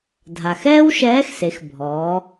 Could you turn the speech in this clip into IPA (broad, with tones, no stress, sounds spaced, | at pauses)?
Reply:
dʱ a˩ x ɛː˥ w ʃ ɛː˧˥ x s e˩˧ x bʱ ɔː˩˧